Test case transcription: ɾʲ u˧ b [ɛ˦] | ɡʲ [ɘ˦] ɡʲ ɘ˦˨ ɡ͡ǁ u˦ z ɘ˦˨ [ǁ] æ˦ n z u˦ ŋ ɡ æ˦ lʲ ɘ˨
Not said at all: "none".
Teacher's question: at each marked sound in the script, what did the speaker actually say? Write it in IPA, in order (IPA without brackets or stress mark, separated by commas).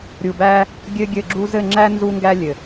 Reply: æ˦, ɘ˦, ŋ͡ǁ